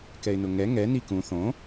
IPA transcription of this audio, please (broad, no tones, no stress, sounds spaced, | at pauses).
k ɛ ɪ̯ n ʊ ŋ ɛ ŋ ɛ n i k ũ θ õ